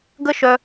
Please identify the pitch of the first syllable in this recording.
high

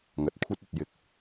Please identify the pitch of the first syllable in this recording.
rising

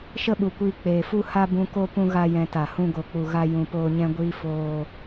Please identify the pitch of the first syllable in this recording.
high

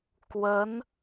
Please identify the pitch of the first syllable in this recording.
rising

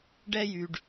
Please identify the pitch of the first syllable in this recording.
high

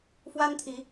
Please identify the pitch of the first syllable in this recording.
high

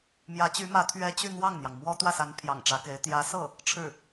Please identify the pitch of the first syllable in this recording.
rising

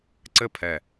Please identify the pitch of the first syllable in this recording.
falling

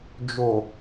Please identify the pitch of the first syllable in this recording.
low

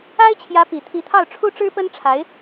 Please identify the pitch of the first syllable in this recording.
high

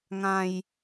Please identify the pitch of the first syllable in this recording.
low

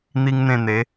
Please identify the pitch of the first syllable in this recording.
high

